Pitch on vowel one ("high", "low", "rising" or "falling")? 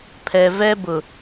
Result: low